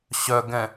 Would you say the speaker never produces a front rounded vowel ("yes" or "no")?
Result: no